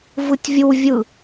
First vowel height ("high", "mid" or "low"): high